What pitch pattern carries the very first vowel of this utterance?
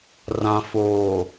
low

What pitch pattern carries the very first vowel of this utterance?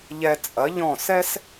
low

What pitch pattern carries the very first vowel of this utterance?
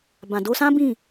low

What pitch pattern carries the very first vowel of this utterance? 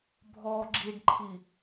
low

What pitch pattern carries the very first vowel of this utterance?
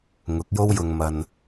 rising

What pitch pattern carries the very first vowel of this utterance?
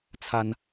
high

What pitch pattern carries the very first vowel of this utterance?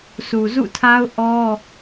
low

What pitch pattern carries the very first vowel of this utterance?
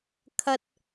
low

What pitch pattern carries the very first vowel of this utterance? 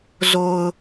low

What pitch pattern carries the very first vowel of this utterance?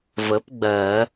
rising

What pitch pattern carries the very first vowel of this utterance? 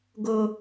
low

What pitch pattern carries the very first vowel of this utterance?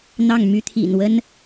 falling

